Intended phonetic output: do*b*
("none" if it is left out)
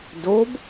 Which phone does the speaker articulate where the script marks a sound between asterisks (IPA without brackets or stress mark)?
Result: b